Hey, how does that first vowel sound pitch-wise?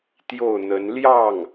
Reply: falling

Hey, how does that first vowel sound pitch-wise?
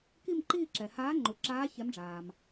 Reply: falling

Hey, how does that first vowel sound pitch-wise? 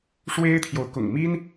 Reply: high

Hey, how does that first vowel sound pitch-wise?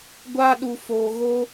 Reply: high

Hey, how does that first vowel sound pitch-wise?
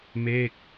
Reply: falling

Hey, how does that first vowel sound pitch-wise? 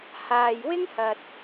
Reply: low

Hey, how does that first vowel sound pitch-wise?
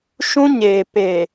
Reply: high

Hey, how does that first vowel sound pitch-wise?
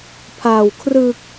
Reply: low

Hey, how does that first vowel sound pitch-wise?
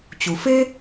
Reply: low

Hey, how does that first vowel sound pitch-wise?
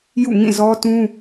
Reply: falling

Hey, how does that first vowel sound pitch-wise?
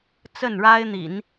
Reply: falling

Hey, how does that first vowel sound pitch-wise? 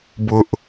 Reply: high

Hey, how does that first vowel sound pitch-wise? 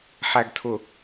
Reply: low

